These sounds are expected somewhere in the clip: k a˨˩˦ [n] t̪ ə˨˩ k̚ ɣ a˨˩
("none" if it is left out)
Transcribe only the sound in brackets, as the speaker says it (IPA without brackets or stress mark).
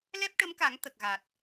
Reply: ŋ